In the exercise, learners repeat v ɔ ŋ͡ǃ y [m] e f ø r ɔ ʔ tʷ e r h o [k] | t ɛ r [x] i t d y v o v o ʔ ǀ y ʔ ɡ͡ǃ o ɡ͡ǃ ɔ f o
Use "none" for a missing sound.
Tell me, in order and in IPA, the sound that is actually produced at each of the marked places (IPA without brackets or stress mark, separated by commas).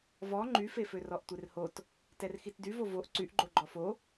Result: f, t, x